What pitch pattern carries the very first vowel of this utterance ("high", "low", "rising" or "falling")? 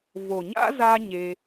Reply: low